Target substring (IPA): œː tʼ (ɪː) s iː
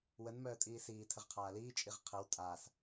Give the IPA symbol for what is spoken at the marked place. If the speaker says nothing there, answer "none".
iː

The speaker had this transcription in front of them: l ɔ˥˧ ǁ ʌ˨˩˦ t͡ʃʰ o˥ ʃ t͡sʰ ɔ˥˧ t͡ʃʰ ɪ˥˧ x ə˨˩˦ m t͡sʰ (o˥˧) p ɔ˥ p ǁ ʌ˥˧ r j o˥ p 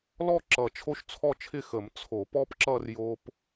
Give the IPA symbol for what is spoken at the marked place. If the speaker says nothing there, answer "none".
o˨˩˦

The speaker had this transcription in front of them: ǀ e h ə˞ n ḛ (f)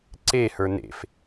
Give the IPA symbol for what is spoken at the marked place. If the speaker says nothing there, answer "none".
f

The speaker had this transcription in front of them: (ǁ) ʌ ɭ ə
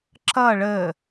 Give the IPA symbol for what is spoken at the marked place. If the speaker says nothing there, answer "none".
ǁ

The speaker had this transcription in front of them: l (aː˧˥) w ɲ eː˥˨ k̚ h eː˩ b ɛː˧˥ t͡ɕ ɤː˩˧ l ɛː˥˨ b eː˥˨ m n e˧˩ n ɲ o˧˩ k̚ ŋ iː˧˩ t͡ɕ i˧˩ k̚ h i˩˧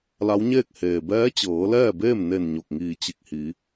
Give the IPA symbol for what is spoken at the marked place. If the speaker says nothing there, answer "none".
a˧˥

